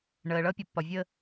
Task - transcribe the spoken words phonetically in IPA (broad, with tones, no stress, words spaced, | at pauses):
ɳəː˨ɭʌ˦ pʲɒ˨pːɒ˨vʲəː˦